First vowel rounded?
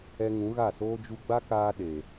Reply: no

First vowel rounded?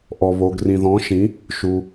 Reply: yes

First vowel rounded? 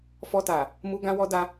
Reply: yes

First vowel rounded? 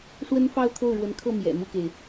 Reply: no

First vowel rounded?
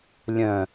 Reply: yes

